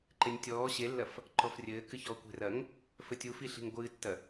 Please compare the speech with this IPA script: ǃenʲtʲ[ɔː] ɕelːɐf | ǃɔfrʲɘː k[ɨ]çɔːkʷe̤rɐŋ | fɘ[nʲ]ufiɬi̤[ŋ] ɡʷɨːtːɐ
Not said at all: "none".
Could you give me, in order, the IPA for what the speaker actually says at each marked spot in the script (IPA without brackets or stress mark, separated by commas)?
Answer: ɔː, ɨ, tʲ, ŋ